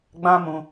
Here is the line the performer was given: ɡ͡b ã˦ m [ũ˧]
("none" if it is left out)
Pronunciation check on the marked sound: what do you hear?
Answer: ũ˧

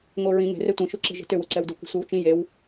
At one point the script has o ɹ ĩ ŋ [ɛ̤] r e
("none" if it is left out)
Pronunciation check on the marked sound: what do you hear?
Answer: e̤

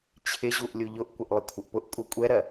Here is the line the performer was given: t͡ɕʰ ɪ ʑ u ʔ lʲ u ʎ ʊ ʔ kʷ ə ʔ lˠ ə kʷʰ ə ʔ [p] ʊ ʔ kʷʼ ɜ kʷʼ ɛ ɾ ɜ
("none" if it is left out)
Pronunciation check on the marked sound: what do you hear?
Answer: p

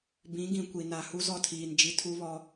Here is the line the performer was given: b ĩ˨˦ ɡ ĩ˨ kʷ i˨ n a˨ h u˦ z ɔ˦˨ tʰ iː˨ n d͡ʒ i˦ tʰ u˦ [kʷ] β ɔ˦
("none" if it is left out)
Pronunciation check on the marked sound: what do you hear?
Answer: none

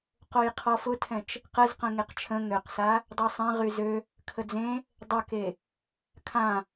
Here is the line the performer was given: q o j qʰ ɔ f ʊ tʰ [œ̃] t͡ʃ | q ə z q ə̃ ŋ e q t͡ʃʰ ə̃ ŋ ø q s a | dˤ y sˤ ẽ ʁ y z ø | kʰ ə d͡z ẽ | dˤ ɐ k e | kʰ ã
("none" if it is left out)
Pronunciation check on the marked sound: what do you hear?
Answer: ɛ̃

